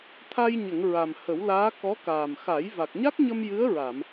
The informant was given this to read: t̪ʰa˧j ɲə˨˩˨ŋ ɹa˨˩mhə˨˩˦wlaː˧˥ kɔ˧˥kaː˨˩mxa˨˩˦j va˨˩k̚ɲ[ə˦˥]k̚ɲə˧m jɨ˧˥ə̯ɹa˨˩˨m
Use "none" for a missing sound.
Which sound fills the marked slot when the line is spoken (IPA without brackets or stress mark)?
a˦˥